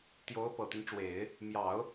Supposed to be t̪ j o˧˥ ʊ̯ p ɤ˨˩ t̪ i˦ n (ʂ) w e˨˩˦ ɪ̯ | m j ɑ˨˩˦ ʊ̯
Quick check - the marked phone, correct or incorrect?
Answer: incorrect